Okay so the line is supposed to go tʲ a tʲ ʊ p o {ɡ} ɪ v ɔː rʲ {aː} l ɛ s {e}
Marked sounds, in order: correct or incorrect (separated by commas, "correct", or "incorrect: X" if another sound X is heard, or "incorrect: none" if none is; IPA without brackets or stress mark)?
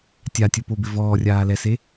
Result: incorrect: b, correct, correct